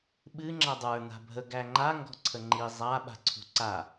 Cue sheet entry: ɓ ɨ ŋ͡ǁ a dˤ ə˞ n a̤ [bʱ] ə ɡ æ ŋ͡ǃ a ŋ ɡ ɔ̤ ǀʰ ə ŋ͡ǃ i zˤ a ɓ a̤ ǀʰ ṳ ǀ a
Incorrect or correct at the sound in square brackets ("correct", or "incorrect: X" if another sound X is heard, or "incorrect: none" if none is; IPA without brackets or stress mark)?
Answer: correct